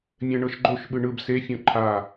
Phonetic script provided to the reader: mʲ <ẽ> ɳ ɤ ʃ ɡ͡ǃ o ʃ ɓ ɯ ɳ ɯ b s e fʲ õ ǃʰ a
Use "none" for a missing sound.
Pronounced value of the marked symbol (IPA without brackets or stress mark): ɛ̃